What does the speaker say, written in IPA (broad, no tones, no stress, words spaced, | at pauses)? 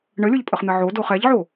ɳəlʲoʎpʼəχn̪ɘ ʕodoχ ɛʎʕo